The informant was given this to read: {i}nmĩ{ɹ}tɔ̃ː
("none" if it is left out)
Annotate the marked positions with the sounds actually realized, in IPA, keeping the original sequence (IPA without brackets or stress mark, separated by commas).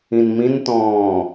ĩ, n